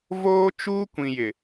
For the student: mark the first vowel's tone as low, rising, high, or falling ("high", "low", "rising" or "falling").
high